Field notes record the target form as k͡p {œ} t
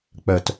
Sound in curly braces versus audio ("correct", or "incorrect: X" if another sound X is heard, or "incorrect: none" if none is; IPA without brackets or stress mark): correct